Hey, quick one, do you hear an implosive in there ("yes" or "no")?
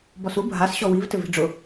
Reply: no